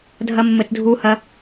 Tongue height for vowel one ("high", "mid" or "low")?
low